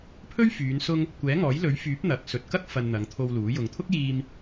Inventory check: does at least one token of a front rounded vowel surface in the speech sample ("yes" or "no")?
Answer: yes